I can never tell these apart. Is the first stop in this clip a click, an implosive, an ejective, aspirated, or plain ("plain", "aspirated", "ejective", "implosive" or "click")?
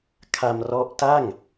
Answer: aspirated